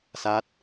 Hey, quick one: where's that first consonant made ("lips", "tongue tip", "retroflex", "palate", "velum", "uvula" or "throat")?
tongue tip